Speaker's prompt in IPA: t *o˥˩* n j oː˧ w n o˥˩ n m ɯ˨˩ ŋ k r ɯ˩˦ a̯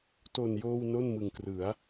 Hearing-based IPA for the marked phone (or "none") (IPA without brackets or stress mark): o˨˩